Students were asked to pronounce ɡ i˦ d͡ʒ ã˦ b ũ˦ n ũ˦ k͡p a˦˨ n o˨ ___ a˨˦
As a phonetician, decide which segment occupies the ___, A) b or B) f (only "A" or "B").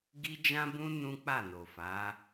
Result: B